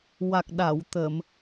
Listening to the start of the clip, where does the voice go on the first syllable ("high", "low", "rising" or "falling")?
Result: low